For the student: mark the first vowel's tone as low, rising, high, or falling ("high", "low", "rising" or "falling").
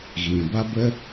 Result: low